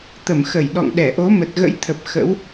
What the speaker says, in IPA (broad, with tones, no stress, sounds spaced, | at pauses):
t̪ ə˧˩ m x ə˧˩ j ɗ ɔ̰˧˨ ŋ ɗ ɛ˧˩ ʔ o˨˦ m ə˨˩ t̚ ɣ ə̰˧˥ j t̪ʰ ə˨˩ p̚ x ə̰˧˥ w